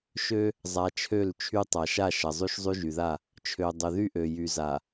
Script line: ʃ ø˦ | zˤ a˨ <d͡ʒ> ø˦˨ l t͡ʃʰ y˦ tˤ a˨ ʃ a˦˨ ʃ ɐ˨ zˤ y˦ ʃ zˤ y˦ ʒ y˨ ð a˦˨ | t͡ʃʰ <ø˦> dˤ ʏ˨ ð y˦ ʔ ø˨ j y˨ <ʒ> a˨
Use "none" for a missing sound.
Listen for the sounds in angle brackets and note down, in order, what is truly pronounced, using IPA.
t͡ʃʰ, ø˨, z

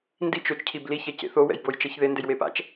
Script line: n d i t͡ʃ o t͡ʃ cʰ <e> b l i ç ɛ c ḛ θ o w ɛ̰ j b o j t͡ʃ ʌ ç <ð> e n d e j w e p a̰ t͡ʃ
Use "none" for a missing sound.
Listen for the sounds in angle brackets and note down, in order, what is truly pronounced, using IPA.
i, ð

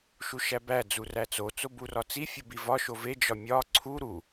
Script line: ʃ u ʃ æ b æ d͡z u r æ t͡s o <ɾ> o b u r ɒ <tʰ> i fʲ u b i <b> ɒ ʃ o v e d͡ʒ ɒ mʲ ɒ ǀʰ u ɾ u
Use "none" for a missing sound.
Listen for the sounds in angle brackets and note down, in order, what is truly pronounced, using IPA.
t͡s, t͡s, v

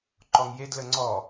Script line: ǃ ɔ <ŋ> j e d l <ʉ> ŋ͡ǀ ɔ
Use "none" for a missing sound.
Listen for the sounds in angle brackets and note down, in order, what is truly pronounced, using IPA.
ŋ, ə

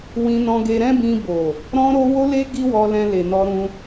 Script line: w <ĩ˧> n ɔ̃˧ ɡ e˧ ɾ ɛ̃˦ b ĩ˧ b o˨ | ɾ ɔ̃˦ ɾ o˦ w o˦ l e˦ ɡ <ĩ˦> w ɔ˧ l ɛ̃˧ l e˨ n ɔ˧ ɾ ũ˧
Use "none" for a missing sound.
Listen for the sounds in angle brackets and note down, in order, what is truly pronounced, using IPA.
ĩ˧, i˦

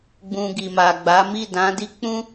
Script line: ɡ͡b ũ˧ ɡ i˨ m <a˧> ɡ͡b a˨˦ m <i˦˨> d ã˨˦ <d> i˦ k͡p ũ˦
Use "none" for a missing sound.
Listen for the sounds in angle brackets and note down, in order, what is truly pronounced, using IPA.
a˨, i˦˨, d

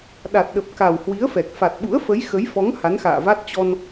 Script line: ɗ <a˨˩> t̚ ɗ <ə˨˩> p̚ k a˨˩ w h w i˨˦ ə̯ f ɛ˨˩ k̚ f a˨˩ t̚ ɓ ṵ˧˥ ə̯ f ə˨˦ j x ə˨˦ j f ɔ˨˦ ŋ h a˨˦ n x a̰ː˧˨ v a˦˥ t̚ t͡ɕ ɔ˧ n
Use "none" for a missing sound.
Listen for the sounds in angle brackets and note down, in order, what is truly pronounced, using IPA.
a˨˩, ə˨˩

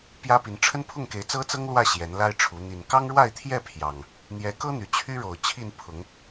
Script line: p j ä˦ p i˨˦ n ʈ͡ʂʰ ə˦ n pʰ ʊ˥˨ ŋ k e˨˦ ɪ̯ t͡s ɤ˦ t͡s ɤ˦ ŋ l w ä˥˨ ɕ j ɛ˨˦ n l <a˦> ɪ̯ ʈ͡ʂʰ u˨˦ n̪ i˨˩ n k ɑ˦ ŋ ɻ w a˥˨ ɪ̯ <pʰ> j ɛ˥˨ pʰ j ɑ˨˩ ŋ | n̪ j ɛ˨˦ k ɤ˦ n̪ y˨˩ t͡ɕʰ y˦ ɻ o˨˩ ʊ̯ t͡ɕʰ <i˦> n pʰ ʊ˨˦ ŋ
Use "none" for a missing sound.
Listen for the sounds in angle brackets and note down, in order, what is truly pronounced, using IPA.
a˦, t̪ʰ, i˥˨

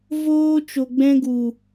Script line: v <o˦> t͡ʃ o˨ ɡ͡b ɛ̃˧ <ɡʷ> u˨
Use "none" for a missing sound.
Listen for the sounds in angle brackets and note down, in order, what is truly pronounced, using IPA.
oː˦, ɡ

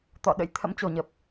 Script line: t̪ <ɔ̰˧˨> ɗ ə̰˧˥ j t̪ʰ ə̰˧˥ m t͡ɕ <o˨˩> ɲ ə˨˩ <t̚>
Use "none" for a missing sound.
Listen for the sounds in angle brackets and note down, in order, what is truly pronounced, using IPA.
ɔ̰˧˨, o˧˩, p̚

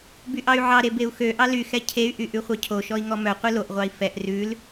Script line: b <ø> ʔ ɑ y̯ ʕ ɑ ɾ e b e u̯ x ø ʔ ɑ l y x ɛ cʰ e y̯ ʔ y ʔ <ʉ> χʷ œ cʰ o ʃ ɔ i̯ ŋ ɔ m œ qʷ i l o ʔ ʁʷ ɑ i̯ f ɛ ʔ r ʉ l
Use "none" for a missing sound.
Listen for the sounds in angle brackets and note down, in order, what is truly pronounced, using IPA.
y, ʉ

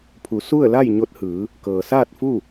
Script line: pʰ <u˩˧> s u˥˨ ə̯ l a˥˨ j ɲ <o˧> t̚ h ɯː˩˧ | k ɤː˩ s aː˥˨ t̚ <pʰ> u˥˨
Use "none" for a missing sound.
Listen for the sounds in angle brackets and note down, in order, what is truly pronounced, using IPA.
u˩˧, o˧, f

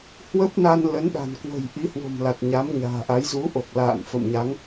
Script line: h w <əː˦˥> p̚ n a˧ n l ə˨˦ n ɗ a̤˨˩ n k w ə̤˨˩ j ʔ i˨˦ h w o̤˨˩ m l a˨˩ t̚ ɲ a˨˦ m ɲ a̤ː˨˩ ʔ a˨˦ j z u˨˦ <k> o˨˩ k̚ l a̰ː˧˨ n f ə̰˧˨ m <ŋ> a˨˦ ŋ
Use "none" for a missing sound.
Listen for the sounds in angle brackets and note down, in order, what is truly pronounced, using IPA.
ə˦˥, ʔ, ɲ

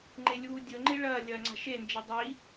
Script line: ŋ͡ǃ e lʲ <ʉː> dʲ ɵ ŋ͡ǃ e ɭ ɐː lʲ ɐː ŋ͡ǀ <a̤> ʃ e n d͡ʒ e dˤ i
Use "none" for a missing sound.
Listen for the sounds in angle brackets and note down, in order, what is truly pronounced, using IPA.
uː, a̤

